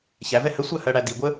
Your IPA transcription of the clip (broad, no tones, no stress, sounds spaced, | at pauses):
ç æ v ɛ h ə sʷ ɜ h ɜ ɽ æ d i ɡʷ ə